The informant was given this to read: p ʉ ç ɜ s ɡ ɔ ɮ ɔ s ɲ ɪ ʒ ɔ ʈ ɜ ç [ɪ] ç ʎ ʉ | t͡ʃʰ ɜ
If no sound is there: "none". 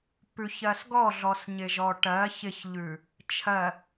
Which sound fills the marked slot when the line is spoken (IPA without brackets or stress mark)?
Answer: ɪ